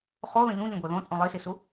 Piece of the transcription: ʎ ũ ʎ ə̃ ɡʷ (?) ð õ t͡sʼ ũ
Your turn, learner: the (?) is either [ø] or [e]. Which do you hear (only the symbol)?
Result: e